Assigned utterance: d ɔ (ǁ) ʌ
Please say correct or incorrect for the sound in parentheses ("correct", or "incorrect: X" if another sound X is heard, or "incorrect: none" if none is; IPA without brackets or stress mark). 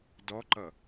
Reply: incorrect: ǃ